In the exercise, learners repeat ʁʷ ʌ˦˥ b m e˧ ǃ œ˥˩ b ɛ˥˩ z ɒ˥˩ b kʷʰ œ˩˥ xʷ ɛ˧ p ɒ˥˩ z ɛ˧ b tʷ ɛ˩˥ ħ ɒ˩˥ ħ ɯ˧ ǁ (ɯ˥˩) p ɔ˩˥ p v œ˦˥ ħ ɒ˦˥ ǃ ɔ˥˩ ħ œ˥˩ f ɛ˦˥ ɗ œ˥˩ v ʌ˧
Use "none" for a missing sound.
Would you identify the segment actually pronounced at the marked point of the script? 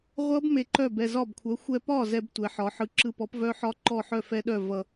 ɯ˧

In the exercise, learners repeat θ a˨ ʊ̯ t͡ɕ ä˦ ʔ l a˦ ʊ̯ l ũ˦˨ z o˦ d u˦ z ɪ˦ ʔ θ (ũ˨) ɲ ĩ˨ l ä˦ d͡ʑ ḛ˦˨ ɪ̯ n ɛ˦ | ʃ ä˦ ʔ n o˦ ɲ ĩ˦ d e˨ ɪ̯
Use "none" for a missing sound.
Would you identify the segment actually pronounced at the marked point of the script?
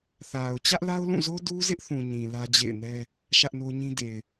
ũ˨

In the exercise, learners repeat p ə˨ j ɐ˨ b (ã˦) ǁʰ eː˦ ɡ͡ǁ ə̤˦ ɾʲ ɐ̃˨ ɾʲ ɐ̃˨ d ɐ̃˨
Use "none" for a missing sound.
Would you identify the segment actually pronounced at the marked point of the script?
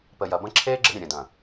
ɐ̃˦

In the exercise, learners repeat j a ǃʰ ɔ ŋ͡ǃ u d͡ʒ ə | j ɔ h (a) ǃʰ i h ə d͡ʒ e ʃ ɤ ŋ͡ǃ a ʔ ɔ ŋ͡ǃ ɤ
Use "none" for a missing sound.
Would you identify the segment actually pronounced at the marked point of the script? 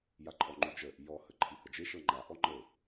ə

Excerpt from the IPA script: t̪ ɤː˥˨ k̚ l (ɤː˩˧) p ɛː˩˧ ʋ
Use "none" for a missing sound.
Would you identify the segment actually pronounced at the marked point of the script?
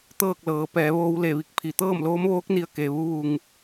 ɤː˩˧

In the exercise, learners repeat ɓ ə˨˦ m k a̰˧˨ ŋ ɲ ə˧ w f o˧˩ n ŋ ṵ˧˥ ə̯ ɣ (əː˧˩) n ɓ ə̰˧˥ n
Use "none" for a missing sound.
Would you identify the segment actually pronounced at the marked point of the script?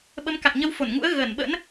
əː˧˩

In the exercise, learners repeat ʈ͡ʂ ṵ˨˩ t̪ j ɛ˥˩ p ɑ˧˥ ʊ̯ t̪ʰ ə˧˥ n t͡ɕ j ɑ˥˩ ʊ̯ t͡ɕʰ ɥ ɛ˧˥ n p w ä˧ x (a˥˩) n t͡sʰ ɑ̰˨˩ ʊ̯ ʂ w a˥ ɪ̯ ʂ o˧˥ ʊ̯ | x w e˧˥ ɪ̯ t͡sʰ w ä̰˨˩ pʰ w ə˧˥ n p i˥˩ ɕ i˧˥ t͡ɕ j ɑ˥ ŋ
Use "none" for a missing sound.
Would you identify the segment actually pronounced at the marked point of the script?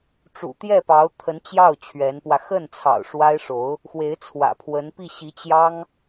ə˥˩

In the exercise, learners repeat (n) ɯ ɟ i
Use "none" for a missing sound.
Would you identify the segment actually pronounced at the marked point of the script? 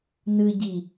n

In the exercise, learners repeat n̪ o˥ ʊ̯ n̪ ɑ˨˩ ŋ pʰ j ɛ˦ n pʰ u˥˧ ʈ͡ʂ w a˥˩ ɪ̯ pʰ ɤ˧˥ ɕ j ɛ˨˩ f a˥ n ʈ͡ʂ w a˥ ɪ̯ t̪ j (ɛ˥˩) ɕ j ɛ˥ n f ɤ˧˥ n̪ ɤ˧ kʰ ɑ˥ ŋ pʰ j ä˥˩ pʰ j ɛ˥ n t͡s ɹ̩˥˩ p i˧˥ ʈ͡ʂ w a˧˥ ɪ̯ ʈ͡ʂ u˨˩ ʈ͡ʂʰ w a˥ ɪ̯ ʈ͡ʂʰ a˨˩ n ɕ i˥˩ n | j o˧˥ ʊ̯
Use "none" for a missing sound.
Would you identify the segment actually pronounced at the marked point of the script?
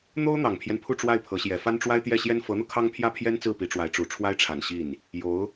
ɛ˥˩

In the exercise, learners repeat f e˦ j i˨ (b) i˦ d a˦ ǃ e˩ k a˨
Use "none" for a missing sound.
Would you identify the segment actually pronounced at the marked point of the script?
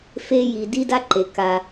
d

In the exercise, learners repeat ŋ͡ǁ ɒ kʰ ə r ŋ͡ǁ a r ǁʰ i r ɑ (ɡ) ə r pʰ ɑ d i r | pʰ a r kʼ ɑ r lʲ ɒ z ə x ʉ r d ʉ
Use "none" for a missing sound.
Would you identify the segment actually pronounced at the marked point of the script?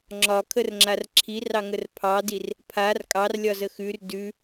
ŋ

